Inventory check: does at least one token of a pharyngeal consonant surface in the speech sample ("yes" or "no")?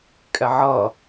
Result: yes